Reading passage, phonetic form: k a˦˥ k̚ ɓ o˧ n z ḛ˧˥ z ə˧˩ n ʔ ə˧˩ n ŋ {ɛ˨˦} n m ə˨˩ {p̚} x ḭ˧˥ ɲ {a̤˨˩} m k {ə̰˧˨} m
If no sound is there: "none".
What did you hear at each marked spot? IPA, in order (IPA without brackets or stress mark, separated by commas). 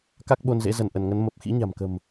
ə˨˦, p̚, a̤˨˩, ə̤˨˩